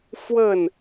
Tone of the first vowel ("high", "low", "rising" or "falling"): falling